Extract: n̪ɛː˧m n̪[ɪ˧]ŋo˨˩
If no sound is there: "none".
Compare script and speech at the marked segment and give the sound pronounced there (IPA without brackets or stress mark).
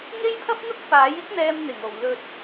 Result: ɪ˨˩